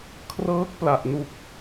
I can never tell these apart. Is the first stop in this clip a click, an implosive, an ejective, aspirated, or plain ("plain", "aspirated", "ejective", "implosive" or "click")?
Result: aspirated